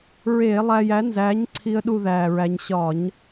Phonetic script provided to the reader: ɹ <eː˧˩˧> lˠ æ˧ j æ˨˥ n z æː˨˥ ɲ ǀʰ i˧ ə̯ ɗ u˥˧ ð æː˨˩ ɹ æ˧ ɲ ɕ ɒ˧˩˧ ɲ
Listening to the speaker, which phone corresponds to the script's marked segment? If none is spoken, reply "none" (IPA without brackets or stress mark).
eː˧˩˧